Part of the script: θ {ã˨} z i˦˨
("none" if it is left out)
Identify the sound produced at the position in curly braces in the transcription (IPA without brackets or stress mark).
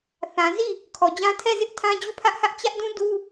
ã˨